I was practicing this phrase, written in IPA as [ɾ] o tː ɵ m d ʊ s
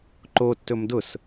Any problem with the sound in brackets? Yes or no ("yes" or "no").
yes